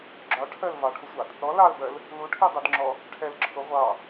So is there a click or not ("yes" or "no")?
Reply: yes